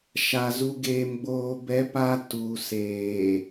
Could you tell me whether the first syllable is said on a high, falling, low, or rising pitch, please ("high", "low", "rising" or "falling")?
low